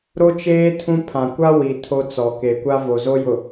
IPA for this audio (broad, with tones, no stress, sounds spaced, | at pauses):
ɾ o˦ t͡ʃ eː˦ tʰ ũ˦ pʰ ã˨ kʷ a˦ w i˨ tʰ o˦ t͡s ɔ˨ k e˨ kʷ a˦ v o˨ z o˦ j ʊ˨